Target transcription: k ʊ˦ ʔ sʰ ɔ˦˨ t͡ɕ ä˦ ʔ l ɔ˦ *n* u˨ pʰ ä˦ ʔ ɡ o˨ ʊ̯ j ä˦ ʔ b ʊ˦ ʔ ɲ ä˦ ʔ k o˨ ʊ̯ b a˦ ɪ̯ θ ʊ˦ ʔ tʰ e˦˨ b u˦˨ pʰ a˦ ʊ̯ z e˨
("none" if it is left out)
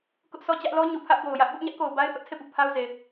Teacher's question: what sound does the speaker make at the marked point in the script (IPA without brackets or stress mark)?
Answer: ɲ